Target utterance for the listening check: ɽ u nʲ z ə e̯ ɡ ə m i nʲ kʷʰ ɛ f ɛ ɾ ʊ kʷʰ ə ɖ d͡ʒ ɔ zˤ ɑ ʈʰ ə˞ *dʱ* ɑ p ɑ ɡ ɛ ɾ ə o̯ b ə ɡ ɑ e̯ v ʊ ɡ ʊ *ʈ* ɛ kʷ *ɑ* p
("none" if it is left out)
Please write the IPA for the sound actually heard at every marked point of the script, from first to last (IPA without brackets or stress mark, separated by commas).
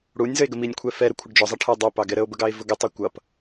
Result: dˤ, tˤ, ʌ